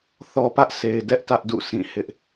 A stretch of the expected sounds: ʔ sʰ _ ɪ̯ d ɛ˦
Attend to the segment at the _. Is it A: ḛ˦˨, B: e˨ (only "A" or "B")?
B